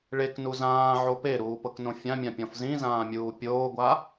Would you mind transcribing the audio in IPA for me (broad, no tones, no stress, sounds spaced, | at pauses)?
ɭ e k n u z ãː ʕ o p e ɾ uː p ɤ k n õ fʲ ã mʲ ã pʲ ɔ̃ f z ĩ z ãː mʲ uː pʲ oː ɡʷ a